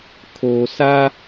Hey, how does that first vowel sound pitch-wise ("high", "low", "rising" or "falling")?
low